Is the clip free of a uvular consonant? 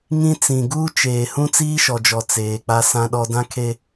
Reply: yes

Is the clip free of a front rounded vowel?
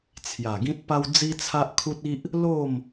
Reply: yes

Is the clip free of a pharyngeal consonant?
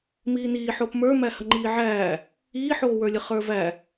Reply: no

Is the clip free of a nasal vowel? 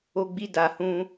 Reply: no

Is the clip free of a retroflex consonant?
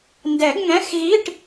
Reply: no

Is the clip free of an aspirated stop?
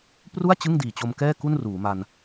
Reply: yes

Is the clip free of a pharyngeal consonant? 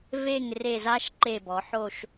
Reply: no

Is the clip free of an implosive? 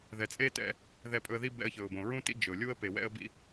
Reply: yes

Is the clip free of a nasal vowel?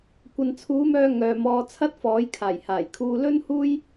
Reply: yes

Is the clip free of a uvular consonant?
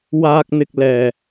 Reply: yes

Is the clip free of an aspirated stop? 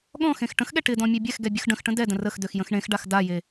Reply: yes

